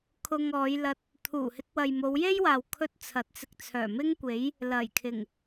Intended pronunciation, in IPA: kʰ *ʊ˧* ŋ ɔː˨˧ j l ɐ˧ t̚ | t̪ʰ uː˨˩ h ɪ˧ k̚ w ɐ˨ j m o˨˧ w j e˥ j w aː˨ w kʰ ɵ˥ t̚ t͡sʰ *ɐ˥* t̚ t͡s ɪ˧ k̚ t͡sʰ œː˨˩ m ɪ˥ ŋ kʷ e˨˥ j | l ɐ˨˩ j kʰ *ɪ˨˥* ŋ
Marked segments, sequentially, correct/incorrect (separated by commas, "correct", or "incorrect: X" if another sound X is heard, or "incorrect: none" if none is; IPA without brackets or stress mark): correct, incorrect: ɐ˨˥, incorrect: ɪ˨˩